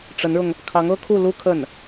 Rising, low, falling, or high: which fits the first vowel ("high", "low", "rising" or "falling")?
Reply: rising